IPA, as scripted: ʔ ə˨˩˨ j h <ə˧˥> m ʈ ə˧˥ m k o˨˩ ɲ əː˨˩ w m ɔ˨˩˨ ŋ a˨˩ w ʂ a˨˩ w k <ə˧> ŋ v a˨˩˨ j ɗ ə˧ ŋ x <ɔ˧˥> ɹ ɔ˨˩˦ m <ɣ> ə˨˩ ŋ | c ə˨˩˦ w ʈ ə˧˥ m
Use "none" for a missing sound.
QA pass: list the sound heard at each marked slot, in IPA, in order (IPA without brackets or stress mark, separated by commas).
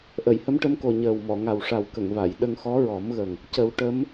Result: ə˧˥, ə˨˩˨, ɔ˧˥, ɣ